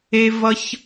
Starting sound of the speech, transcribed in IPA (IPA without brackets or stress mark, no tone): e